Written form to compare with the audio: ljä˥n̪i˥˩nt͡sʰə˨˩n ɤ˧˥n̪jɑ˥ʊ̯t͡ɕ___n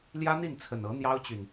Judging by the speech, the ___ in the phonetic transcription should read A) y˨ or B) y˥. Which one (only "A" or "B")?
A